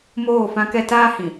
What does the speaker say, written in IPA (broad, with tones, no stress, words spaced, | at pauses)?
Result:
moː˦˨fã˦kɛ˦ taː˦hĩ˨